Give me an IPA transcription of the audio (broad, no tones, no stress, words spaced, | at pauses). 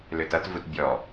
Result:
løtʌtvut bʲɔ